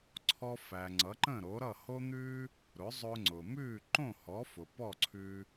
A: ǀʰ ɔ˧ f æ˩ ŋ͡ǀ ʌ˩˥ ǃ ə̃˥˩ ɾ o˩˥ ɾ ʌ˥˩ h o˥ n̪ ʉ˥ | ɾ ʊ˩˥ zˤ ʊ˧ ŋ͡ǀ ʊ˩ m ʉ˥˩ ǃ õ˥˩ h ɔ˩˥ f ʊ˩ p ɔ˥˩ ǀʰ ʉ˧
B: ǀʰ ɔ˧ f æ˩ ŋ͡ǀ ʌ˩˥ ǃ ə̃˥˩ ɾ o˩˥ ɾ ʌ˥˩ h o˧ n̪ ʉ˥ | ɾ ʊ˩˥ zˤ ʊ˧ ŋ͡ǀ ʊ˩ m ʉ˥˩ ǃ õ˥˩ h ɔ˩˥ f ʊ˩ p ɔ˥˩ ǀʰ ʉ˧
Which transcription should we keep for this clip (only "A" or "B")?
A